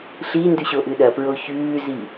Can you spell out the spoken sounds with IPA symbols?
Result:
ɬ i n d ʉ ɕ o ʔ ɨ ɗ ɐ p ɹ o ç ʉː z i

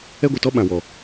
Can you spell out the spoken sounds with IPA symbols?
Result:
ɛ˦ ɡʷ ɨ˨ t ɔ˦ ɓ ã˨ w ɔ˨

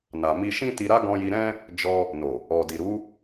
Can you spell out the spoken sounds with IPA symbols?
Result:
n a˨ m i˧ ʃ ĩ˦ t i˧ ɾ a˦ ɡ ɔ̃˧ j i˧ ɾ ɛ̃˦ | d͡ʒ ɔ˧ | n o˨ | ɔ˨ d i˨ ɾ u˨˦

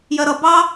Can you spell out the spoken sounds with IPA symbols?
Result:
j ɜ ɾ ʌ b ɑ

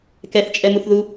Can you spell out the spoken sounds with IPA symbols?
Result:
k ɛ θ t͡ʃʼ ɛ m u θ ð u

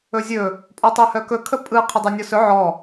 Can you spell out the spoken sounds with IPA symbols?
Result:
ɵ zʲ ɵ | pʼ ɔ tˤ ə˞ h œ k ɵ kʰ ə pʼ ɯ qʰ ə dˤ ə˞ nʲ ɔ s ɵ ʕ ɔ

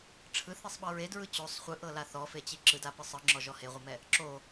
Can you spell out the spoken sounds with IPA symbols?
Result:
ʈ͡ʂʰ ɯ θ i sˤ ɓ ɤ ɹ e d ɹ ɯ t͡ɕ o sˤ χʷ ɯ ʔ ɤ l a θ ɔ f e t͡ɕ i ǁ ɯ d a p ɯ sˤ ɯ ŋ͡ǁ ɔ ʒ ɔ h e ʁʷ ɤ m ɛ | ǁ o

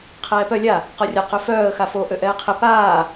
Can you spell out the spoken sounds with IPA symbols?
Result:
qʰ ɛː p œ lʲ a | q ɔ rʲ ɐ q ø f œː ə̯ x a f o ʔ ø ʔ ɛː qʰ ɪ p aː

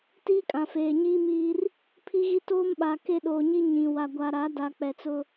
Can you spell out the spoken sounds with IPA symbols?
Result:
t iː˦ kʼ ã˨ f eː˨ ɲ iː˦ m iː˦ r | pʰ i˦ ɣ i˦ t oː˦ m ɓ a˨ k e˦ ɗ oː˨ ɲ i˦ ɲ ĩ˨ w a˨ ɡʷ a˨ ɾ a˨˦ d a˨ k͡p ɛ˨ t͡s ʊ˦

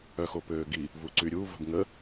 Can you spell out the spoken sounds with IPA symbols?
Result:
œ x o p øː ɡ i | v u ǀ y ɾʲ u v ə̤ b ŋ ə

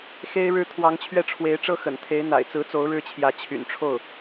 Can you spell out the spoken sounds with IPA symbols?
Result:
x e˥ ɪ̯ ɻ ɻ̩˥ t̪ʰ w ɑ˧˥ ŋ t͡ɕʰ ɥ ɛ˥˩ ʈ͡ʂʰ w e˧˥ ɪ̯ ʈ͡ʂ ɤ˥ x ə̰˨˩ n t̪ʰ e˧˥ ɪ̯ n̪ a̰˨˩ ɪ̯ t͡s ɹ̩˧˥ t͡s o˧˥ ʊ̯ ɻ ɻ̩˥ t͡ɕʰ j ä˧˥ t͡ɕʰ y̰˨˩ n ʈ͡ʂʰ o˥˩ ʊ̯

